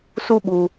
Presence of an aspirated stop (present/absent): absent